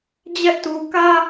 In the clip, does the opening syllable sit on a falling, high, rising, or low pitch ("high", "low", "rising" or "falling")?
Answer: high